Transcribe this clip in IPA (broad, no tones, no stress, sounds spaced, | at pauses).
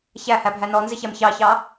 ç æ h æ bʱ æ n ɔ n z ɪ ç æ m ç ɑ ç ɑ